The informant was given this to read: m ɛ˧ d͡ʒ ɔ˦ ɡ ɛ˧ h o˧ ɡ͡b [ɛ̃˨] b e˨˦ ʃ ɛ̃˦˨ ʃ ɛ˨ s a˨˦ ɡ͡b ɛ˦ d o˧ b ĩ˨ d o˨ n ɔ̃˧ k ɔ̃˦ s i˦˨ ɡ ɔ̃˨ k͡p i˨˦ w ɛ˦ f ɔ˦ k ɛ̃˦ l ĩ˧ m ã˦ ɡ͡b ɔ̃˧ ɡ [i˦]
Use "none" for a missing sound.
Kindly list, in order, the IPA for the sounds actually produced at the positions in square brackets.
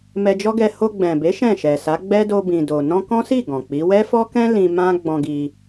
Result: ɛ̃˨, i˧

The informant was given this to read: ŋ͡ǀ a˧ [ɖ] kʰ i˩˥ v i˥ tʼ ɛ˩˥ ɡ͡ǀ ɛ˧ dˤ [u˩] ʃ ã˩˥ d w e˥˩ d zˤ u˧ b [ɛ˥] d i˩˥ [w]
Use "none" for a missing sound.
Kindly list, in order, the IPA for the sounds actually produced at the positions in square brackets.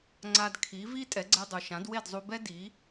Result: d, u˩, ɛ˥, none

